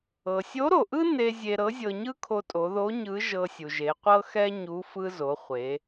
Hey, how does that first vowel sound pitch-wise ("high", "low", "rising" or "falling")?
low